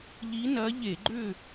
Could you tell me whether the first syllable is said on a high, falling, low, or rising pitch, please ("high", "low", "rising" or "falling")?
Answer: rising